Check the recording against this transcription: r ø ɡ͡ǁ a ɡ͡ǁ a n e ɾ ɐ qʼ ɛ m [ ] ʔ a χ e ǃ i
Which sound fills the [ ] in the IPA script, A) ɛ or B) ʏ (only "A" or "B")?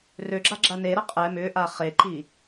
B